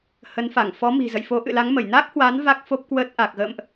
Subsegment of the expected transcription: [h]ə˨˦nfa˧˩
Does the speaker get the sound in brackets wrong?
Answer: no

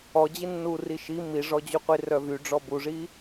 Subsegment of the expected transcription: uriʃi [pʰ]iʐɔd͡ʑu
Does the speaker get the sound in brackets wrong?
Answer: yes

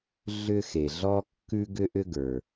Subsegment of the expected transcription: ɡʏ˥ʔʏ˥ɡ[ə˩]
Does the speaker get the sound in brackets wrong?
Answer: yes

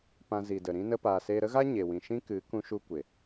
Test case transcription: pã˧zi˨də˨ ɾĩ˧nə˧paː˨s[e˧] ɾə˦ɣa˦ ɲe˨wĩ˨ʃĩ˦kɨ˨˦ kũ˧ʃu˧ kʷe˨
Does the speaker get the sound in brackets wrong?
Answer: no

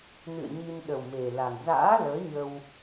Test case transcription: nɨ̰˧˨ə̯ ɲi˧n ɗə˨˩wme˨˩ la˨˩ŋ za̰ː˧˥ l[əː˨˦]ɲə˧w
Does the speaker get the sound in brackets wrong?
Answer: no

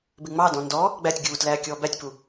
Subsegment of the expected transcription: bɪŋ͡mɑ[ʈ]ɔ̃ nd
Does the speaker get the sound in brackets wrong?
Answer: yes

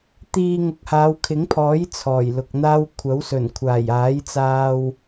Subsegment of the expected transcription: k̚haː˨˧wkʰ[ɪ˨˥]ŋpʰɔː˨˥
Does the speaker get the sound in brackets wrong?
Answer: no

